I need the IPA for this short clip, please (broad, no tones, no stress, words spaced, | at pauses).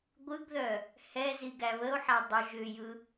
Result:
ɡʷɯɡðœ | hɛz iɡæβəo̯ħæ dˤʏʒ ʏjɯ